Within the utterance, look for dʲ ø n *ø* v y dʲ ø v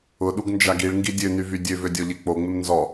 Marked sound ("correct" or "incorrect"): incorrect